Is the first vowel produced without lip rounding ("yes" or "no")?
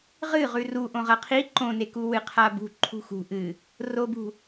yes